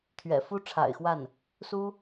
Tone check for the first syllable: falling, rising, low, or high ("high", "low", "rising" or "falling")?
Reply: low